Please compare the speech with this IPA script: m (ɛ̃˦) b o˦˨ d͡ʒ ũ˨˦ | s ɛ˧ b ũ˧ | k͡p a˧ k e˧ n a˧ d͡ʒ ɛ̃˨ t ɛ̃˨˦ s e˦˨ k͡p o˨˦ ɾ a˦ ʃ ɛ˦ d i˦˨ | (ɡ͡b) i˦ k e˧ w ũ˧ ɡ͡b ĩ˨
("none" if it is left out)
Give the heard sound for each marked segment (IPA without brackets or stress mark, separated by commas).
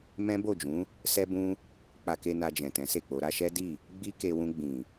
ɛ̃˦, ɡ͡b